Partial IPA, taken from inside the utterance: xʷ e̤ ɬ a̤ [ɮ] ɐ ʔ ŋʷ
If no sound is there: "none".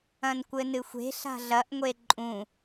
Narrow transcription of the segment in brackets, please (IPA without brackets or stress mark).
ɮ